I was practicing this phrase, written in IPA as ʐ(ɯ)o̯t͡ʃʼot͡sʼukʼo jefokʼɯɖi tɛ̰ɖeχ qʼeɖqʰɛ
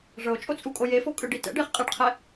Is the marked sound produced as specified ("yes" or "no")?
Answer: no